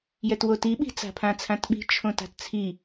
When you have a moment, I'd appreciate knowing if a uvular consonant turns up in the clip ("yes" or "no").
no